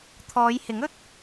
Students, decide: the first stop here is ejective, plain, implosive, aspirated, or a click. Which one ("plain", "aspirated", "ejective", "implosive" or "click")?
aspirated